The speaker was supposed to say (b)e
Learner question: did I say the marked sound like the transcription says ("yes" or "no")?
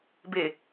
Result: yes